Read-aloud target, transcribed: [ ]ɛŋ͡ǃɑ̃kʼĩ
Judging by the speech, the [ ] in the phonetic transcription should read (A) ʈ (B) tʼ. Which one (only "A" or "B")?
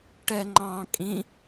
A